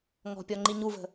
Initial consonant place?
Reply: velar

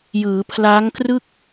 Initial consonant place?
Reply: palatal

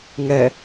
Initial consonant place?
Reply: velar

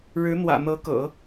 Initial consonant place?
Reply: retroflex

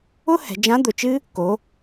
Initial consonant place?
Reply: glottal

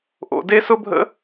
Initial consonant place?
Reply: glottal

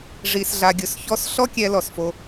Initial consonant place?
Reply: retroflex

